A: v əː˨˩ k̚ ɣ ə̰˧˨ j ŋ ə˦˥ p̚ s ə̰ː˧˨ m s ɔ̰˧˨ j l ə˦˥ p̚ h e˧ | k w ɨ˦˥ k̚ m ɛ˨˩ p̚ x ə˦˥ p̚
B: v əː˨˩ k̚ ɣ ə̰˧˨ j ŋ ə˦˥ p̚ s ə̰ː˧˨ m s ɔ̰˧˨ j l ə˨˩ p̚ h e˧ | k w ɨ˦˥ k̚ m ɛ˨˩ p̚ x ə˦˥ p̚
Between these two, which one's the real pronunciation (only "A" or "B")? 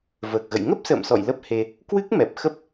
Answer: A